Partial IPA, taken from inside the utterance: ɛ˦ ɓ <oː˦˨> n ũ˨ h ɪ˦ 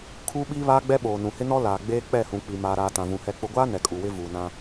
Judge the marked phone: incorrect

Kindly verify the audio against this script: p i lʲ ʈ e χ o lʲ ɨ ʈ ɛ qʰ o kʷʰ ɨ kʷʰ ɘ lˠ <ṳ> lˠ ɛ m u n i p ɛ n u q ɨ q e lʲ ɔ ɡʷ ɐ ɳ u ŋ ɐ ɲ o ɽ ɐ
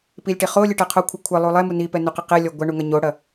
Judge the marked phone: incorrect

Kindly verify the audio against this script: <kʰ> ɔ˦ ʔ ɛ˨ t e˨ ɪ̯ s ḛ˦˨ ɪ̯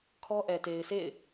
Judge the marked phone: correct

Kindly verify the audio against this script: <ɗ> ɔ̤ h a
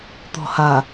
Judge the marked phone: incorrect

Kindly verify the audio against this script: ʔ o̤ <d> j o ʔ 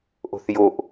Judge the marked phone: incorrect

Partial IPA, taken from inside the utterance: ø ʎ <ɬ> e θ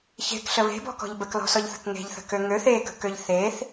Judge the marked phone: incorrect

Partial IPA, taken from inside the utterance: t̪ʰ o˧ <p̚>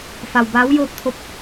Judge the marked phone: correct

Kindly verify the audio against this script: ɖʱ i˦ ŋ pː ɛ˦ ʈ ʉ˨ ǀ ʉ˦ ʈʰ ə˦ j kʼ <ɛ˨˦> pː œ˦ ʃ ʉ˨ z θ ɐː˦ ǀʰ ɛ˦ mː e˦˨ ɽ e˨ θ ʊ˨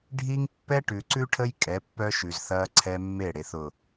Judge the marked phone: correct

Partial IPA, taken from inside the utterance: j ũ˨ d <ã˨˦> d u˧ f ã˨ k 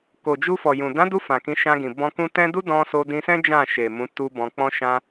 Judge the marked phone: correct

